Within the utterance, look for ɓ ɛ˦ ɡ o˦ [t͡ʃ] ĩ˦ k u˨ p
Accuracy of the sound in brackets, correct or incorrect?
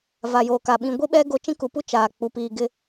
correct